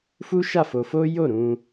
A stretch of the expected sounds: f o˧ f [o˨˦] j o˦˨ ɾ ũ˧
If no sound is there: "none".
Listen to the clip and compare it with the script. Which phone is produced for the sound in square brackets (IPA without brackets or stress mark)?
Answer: o˦